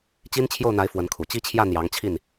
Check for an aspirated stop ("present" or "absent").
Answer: present